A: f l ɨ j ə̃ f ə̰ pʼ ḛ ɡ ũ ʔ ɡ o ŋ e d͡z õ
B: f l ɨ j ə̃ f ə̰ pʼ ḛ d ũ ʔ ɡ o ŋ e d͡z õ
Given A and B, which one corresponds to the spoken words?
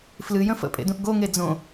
B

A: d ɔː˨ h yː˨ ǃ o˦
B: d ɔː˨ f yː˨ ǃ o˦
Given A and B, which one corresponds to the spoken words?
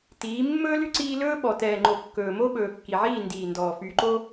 B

